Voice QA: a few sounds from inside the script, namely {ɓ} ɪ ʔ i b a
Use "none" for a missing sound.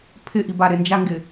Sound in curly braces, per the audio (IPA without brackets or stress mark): pʰ